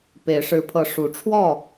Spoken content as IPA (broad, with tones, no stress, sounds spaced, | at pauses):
p e˨˦ ɪ̯ ʂ ɻ̩˨˦ pʰ ɤ˨˦ ʂ u˨˦ ʈ͡ʂʰ w ɔ˥˨